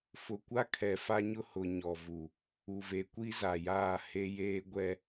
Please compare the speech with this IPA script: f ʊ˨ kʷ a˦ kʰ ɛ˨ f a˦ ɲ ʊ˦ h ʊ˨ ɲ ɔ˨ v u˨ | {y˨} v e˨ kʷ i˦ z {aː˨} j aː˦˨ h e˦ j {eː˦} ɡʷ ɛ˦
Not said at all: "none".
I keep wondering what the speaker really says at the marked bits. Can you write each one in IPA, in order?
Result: u˨, a˨, eː˦

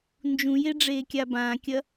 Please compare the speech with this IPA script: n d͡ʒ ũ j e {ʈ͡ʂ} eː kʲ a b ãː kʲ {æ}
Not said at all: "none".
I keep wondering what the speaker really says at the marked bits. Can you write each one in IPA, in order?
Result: ɖ͡ʐ, ɐ

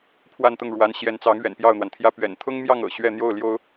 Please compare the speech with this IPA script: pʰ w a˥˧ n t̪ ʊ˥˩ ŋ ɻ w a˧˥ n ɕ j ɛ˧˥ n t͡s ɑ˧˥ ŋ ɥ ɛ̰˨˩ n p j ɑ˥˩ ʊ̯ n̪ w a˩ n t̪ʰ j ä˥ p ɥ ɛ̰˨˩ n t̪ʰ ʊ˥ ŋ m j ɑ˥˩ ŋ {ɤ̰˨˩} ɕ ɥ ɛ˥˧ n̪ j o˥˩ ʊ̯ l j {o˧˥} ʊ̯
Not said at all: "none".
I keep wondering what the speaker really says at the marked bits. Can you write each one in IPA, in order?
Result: ɤ̰˨˩, o˥

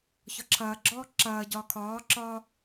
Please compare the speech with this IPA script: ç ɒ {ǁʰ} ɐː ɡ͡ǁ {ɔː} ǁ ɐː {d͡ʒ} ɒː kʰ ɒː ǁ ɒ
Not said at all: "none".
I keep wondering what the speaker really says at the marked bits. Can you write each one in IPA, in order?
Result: ǁʰ, ɔː, ɟ

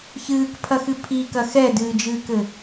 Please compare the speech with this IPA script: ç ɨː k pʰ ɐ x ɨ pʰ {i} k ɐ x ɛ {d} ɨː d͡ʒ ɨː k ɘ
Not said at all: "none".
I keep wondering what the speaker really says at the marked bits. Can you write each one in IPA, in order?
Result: i, d

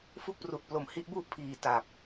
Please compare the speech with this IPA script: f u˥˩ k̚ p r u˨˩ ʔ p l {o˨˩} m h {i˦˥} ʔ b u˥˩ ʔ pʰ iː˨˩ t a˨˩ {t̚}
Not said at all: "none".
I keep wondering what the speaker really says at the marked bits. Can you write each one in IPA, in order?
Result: o˨˩, i˦˥, p̚

